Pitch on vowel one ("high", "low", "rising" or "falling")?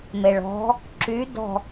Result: low